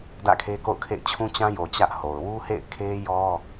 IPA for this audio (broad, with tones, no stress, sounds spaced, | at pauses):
d ä̰˦˨ kʰ e˦ k o̰˦˨ ʊ̯ kʰ ḛ˦˨ ɪ̯ t͡ɕʰ ũ˦ t͡ɕ ã˦ j o˨ t͡ɕ ä˦ ʔ h o˨ ʊ̯ w u˦ h ḛ˦˨ ɪ̯ kʰ e˦ j ɔ˦